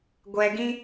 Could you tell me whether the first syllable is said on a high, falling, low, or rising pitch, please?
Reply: low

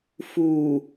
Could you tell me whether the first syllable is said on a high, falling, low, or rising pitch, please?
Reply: low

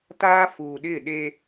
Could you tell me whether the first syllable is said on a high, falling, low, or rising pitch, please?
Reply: high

